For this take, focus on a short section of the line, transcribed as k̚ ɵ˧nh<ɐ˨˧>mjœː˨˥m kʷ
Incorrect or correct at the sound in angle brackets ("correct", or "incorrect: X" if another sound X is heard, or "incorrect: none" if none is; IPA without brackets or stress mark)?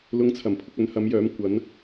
correct